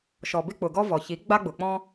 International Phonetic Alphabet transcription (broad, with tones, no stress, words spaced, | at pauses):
ʃɔ˩bɪ˥k͡pʊ˩ɡɔ˥ vɔ˩çi˩˥ ɡ͡ba˥ɡ͡bʊ˩k͡pɔ̃˥